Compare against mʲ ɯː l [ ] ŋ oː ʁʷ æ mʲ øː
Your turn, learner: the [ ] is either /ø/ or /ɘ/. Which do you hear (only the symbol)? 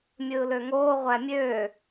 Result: ø